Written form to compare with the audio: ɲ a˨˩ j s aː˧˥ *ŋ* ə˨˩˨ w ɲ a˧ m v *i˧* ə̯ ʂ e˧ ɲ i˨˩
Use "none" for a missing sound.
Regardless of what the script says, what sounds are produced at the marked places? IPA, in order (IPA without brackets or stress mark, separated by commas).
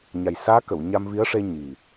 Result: k, i˧˥